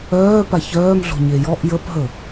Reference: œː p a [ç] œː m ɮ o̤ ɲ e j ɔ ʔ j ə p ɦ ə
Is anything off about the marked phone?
no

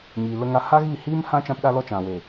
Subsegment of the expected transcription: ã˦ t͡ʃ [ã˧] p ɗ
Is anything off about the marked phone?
no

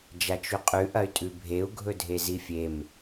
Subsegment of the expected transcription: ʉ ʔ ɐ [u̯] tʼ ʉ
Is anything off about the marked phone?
yes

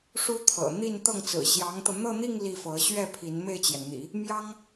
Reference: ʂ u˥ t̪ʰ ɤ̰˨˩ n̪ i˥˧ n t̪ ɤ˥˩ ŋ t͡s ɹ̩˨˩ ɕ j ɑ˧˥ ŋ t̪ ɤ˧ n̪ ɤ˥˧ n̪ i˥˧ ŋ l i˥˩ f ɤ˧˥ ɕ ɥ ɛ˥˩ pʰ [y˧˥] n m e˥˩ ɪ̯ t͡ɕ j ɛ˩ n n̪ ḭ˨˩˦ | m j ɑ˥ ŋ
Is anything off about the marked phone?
yes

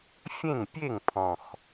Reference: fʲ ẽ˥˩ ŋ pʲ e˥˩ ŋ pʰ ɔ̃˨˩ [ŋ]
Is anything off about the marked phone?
yes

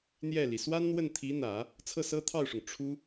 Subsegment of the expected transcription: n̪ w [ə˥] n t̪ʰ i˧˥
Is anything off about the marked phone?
yes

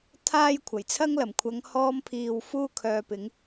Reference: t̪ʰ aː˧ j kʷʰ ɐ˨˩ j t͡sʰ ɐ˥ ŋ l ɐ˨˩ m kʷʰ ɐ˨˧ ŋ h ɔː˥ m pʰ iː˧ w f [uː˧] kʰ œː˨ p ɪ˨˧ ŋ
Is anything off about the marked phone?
no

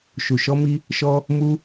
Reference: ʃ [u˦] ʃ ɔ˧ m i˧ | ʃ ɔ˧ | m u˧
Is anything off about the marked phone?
yes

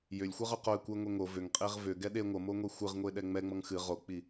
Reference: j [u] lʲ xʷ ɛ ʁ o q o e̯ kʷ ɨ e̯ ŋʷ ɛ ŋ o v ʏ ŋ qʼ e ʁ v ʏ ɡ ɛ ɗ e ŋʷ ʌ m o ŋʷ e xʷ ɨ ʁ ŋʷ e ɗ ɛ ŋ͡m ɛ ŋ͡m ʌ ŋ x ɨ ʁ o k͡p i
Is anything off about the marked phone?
yes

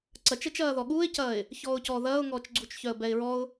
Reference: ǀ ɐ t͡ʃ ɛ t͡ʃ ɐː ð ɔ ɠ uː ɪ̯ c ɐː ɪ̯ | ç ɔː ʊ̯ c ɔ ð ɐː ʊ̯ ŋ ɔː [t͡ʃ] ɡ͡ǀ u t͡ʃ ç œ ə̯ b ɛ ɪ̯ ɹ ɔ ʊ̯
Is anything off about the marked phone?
no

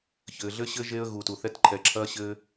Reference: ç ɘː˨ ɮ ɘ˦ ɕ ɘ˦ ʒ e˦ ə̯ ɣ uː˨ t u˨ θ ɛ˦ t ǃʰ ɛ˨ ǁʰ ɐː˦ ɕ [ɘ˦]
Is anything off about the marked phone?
no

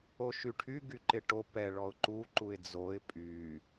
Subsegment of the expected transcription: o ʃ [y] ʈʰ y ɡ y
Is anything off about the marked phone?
no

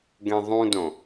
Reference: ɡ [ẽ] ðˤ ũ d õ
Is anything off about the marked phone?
no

